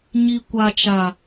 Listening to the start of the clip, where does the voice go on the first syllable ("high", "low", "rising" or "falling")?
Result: low